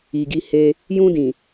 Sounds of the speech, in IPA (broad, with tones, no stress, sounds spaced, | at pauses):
i˨ ɡ i˧ h e˧ | j ũ˧ d ĩ˨